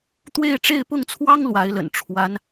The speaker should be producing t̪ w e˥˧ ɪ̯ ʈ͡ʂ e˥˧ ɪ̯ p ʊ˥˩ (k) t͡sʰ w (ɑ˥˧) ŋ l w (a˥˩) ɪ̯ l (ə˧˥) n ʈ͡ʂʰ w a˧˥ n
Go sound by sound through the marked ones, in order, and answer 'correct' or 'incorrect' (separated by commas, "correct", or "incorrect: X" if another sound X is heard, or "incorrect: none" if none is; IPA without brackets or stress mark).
incorrect: ŋ, incorrect: ɑ˥, incorrect: a˧˥, incorrect: ə̰˨˩